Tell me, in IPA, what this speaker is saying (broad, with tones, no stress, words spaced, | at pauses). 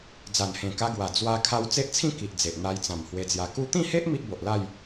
d͡za˨˩nhẽ˨˩ ka˧ɡwa˨˩ d͡zwa˧kʰa˧w t͡se˦ʔt͡sʰĩ˥˧ki˨ʔ d͡ze˨ʔ n̪a˧jt͡sã˨˩m hwe˧d͡zja˧ ku˧t̪ĩ˥˧he˦ʔ mi˦ʔ bo˨ʔla˥˧j